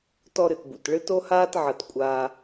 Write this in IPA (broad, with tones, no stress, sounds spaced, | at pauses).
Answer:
t ɔ˧ ɾ ɨ˩ t b ṵ˩ t ɭ ɨ˧ t o˧ h aː˧ t ʕ ɐ˩ t kʷʼ aː˩